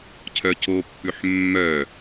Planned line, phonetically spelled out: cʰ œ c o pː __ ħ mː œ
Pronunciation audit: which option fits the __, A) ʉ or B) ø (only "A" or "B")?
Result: A